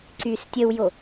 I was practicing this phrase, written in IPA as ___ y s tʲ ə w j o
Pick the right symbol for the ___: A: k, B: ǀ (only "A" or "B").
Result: B